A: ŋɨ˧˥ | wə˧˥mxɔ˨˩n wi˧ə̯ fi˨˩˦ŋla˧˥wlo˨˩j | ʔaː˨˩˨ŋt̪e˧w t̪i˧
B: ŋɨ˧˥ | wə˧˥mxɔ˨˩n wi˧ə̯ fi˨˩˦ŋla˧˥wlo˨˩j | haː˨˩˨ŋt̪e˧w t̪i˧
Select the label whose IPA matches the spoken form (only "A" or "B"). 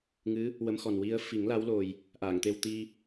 A